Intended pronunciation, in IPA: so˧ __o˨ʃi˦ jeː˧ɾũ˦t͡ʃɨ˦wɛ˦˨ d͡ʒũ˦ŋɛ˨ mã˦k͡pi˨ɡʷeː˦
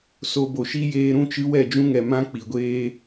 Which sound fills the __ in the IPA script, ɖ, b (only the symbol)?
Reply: b